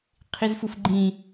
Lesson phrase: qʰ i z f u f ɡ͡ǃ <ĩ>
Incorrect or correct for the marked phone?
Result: correct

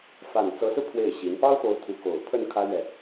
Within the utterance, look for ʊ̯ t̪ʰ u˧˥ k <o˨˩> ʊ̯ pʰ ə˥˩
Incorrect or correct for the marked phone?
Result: correct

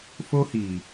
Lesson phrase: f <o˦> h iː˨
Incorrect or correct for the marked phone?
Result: correct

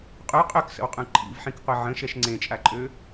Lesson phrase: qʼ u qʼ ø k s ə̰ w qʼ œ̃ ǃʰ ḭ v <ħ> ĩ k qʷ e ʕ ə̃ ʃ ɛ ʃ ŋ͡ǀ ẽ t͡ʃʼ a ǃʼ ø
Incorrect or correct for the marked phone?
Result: correct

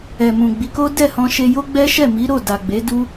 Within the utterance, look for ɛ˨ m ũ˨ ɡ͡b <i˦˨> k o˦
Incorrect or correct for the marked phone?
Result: incorrect: i˨˦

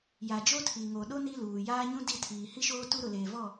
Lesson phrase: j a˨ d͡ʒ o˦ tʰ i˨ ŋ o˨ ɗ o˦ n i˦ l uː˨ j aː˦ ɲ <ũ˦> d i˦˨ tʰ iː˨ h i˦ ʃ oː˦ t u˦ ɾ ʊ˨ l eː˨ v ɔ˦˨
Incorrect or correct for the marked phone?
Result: correct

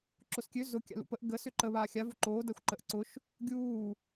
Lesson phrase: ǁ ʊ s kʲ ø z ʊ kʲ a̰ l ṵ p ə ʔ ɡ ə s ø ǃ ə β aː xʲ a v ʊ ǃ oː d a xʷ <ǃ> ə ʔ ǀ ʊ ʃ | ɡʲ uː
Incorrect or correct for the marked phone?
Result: correct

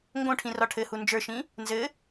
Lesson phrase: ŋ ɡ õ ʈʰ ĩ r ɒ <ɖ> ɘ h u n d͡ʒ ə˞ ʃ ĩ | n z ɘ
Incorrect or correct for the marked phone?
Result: incorrect: ʈʰ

